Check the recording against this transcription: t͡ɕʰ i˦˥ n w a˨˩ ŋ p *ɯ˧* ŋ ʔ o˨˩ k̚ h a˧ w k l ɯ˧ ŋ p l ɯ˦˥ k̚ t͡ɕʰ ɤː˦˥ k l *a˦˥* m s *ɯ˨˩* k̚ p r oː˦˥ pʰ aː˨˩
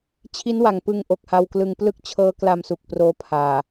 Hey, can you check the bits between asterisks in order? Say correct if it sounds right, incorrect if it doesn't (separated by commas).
correct, incorrect, incorrect